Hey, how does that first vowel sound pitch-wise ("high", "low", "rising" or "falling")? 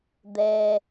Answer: low